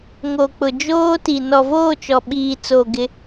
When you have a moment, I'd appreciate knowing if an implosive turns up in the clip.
yes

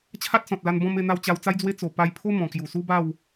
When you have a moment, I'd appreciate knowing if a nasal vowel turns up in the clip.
yes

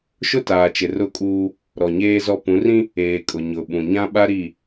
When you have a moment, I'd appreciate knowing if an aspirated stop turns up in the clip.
no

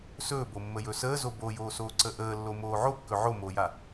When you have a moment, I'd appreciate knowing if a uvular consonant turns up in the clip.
no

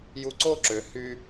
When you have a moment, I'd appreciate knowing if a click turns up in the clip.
yes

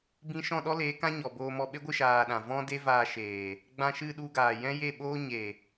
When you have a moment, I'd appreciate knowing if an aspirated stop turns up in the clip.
no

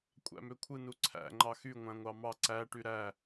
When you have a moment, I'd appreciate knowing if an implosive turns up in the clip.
no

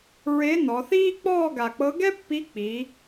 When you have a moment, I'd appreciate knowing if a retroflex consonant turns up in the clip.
no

